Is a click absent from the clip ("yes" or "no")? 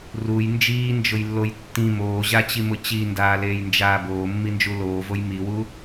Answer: yes